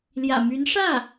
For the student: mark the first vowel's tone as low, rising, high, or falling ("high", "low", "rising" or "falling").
low